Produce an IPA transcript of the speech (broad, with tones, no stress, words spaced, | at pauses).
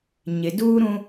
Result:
ɲɪ˨duː˦ ɾũ˦